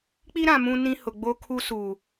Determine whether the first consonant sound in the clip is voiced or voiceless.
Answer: voiceless